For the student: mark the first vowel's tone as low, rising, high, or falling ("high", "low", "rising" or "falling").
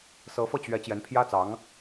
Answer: rising